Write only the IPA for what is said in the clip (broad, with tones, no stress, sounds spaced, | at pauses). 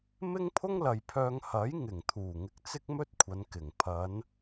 m ɪ˥ ŋ pʰ ʊ˥ ŋ l ɐ˨ j pʰ œː˧ ŋ h ɐ˨˥ j ŋ ɪ˨˩ ŋ t̪ʰ uː˨˩ ŋ ɪ˧ k̚ t͡s ɪ˥ k̚ m ɵ˥ t̚ kʷʰ ɐ˨˧ n k ɪ˨˩ ŋ pʰ ɐ˨˧ n